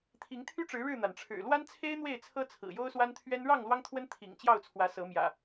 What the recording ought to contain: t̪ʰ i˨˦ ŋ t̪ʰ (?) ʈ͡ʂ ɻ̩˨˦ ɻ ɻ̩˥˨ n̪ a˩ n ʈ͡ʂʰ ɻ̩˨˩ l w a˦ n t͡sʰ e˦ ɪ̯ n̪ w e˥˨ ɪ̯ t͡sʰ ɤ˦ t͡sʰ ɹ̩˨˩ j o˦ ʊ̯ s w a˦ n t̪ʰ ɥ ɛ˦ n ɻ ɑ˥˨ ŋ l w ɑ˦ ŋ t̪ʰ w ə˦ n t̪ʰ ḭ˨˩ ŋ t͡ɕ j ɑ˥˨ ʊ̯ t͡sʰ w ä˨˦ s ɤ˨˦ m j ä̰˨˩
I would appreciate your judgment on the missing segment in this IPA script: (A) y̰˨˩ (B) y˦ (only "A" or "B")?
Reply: B